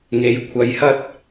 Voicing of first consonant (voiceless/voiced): voiced